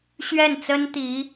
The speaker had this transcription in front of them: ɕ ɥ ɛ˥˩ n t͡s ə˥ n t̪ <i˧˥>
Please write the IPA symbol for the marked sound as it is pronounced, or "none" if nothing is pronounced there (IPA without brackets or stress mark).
i˧˥